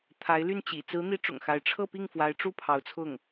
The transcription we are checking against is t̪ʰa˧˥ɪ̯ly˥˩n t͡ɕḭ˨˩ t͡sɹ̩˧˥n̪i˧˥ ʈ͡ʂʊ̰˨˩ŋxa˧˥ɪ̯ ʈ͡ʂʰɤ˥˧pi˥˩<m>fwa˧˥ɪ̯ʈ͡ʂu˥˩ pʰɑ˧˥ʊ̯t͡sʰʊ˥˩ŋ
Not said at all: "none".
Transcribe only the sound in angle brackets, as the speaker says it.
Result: ŋ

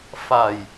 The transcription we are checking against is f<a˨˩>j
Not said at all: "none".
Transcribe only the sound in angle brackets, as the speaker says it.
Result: a˨˩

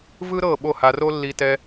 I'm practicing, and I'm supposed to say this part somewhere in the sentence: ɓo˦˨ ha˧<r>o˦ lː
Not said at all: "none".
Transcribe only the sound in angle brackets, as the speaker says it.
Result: r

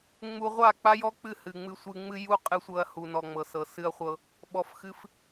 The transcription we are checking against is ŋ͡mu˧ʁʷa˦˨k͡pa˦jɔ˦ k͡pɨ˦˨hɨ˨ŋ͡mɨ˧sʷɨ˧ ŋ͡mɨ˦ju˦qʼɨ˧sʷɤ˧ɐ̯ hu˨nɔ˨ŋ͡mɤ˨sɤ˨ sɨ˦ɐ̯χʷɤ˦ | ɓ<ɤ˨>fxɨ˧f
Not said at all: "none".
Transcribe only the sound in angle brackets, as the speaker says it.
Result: ɔ˨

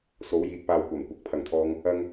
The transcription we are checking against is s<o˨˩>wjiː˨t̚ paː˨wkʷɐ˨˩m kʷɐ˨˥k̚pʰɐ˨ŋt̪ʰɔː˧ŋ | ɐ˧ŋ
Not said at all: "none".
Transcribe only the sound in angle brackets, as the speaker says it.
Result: o˨˧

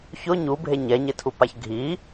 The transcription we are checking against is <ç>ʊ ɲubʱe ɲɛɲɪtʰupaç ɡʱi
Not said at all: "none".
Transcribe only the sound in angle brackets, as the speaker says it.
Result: ç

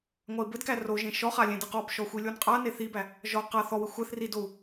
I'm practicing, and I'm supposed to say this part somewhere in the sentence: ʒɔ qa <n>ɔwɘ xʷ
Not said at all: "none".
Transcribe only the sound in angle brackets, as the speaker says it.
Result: θ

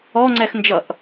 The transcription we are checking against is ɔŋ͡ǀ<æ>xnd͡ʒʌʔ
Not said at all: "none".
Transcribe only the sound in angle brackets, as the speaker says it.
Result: ɛ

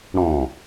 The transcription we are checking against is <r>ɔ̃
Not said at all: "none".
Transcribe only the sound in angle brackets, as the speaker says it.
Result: ɽ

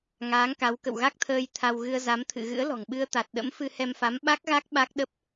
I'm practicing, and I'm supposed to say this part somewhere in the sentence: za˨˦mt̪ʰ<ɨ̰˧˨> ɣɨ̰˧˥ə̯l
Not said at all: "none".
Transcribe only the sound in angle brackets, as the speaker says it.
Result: ɨ̰˧˨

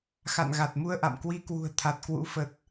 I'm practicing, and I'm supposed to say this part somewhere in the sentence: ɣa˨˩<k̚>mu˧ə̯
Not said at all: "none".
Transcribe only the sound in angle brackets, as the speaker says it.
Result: t̚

